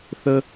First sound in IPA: θ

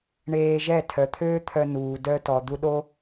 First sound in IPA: ɳ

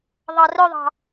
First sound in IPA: ðˤ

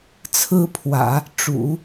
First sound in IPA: t͡sʰ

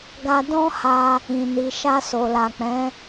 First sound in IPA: ɡ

